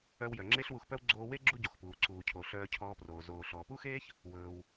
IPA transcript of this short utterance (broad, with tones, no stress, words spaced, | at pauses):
œ˧w jœ˩ŋ͡ǁe˥ɬwu˧xpœ˥w ɡ͡ǀoː˧we˥ ɡ͡ǁu˥ɟo˩xpuː˩ ǀuː˩cʰo˩ ɬœː˧cʰɔː˧proː˩ zoː˩ ɬɔː˩pu˥xeː˥ç | wɵː˩w